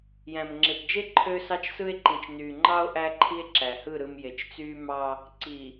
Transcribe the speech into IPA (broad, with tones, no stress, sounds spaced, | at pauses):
j æ̃˨ m ŋ͡ǁ e˨ p d͡ʒ e˦ ǃʰ ø˦ s ɑ˦ t͡ʃ s ɯ˦ e̯ ǃ ĩ˨ t͡ʃ n yː˨ ŋ͡ǃ ɑ˦ o̯ ʔ æ˦ ǃʰ i˦ e̯ ǁ æ˨ h ɯ˦˨ ɾ ɯ˨ m j e˨ t͡ʃ t͡s yː˦ m ɑ˦ | ǀ i˨